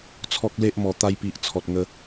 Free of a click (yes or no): yes